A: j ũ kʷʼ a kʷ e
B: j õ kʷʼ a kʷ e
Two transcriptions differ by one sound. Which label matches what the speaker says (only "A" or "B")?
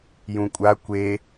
A